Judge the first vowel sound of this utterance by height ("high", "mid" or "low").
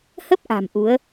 mid